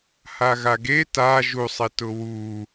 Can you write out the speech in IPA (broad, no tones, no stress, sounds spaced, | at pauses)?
h a ɣ a ɡ e t a ʒ u sˤ e t ʊ w u